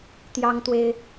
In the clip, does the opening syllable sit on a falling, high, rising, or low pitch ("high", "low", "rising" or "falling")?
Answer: high